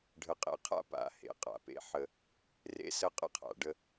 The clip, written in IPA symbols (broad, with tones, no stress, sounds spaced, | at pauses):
ɖʱ ə˨ qʼ ḛ˨ qʰ a̰˦ p a̰˨ h ḛ˨˦ qʼ a̰˨ p ḛ˦ ħ ə˦ | r ḛ˦ s ə˦ qʼ ə̰˦ qʰ a̰˨ ɖ ə˦